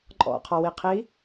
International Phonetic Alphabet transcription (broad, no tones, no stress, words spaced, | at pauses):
ǃʼɔ̰qʰɔwiqʰi